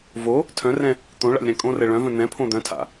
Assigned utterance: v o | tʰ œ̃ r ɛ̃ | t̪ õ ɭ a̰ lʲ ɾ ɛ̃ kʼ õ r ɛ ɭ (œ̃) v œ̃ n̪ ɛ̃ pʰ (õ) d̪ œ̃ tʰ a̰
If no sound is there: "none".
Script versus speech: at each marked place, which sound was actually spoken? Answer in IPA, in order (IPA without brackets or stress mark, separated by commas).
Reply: œ̃, õ